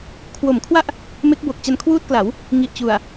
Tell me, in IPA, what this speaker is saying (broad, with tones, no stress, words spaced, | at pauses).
kʰwo˩˦mkʰwa˥˩ʔ | me˦˥k̚bo˨˩k̚ t͡ɕa˧nkʰwuː˥˩t̚kla˩˦w | ŋi˨˩ʔt͡ɕu˨˩a̯